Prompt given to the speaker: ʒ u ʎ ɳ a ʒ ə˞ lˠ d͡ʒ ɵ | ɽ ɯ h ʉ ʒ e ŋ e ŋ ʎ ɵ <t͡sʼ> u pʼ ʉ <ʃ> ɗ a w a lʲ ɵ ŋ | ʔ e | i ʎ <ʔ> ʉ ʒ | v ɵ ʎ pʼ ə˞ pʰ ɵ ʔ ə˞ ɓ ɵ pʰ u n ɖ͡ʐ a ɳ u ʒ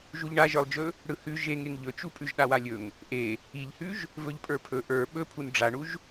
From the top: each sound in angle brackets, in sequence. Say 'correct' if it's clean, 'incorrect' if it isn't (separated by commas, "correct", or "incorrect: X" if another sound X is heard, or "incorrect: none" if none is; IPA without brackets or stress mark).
incorrect: t͡ʃ, incorrect: ʒ, incorrect: h